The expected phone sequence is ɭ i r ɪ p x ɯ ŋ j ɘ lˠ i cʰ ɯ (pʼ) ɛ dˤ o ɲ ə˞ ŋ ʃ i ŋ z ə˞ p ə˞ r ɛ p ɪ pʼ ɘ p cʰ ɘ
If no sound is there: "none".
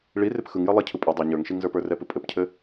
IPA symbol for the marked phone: pʼ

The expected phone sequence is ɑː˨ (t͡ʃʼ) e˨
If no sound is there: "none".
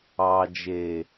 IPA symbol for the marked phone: d͡ʒ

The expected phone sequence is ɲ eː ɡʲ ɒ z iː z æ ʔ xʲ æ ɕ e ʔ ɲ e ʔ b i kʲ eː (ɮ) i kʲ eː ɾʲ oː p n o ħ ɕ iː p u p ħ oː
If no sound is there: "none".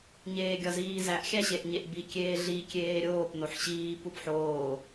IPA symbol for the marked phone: ɮ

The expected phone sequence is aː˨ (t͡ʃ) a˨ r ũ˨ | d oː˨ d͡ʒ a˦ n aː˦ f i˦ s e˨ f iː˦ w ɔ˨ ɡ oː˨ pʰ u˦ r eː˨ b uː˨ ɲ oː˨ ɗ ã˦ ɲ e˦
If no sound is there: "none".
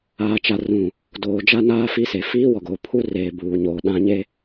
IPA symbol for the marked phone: t͡ʃ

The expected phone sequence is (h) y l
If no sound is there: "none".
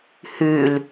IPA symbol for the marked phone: h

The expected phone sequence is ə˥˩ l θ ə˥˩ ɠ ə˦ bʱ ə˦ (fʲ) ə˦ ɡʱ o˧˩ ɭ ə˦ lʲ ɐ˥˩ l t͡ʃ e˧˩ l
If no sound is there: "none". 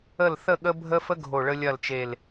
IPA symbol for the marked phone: f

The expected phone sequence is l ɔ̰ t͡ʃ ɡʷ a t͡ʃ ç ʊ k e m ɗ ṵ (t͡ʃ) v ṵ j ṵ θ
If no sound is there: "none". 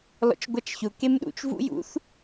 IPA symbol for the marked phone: t͡ʃ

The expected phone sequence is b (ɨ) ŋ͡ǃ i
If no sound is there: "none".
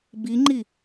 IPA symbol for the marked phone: i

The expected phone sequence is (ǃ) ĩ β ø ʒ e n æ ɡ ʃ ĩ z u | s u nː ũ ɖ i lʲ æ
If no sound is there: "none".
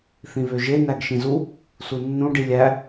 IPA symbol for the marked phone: θ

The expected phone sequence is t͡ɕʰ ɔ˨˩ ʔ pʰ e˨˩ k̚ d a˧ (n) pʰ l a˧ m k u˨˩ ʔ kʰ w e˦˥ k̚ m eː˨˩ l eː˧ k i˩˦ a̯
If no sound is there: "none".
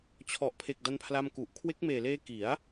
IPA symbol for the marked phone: n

